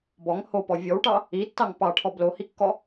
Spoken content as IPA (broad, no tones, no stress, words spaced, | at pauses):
bɔŋ hopɔ vʲɔwʈɑ | itːɑŋ pɑʈʰɔ blohikːɔ